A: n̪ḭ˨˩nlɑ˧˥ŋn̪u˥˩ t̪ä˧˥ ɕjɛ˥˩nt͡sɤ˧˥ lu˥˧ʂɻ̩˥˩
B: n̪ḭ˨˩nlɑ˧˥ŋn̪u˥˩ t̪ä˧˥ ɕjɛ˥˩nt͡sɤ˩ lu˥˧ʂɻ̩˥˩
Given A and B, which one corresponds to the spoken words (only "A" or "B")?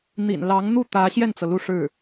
B